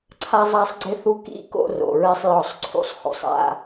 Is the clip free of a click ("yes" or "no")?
no